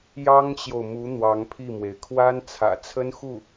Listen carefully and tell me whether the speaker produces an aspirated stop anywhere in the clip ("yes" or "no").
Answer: yes